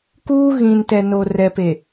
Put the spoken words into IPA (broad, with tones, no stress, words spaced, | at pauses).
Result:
kuː˦ɣĩ˨ntɛ˨no˨ rɛ˨pe˨